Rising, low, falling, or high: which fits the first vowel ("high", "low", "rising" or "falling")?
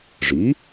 rising